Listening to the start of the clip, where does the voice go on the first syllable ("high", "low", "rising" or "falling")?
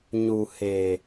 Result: low